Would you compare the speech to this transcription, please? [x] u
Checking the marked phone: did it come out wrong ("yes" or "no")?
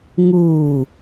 yes